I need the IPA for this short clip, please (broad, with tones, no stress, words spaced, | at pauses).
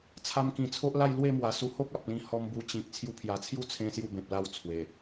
t͡sʰa˧mkĩ˨˩t͡sʰo˦ʔla˥˧j lwe˥˧mwa˨˩ su˧ho˦k̚a˨p̚lĩ˧ hɔ˧mbu˧t͡ɕĩ˨k̚ t͡sʰju˧pʰja˨˩t͡sʰju˥˧ t͡sʰẽ˦sju˥˧ bẽ˨p̚la˦wt͡sʰwe˨˩